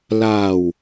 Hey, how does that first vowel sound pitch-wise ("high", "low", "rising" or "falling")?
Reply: low